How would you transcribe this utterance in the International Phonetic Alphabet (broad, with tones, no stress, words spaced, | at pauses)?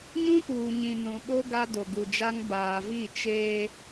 ɲũ˦puː˨ɲĩ˨ nũ˨ɓo˦ ɡa˦do˨ɡu˨d͡ʒa˦ŋ baː˨vi˦˨ t͡ʃeː˦